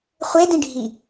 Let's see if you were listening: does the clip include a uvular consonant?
yes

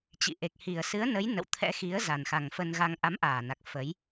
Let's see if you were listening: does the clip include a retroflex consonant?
no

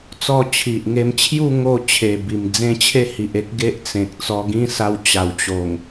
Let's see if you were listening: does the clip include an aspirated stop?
yes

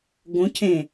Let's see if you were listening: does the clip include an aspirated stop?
yes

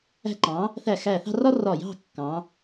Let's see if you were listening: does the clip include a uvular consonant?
no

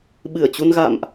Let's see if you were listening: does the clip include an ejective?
no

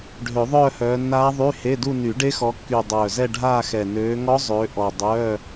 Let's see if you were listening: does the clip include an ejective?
no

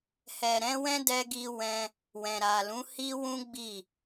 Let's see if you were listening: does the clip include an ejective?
no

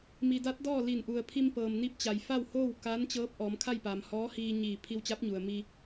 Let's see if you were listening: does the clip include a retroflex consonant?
no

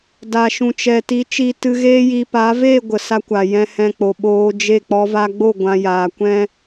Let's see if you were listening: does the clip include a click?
no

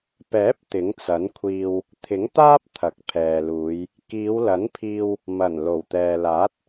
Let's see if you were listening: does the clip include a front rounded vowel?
no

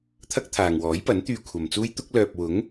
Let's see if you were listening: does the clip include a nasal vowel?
no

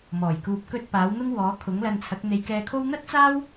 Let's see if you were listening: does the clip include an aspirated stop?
yes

